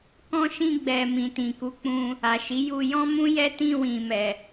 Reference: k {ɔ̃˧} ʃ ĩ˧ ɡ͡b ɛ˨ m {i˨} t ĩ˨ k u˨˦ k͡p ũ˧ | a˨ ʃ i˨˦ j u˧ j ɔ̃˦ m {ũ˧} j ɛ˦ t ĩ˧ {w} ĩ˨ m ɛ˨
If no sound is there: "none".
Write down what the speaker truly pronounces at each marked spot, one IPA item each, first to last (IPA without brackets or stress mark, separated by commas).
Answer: ɔ̃˧, ĩ˨, ũ˦, w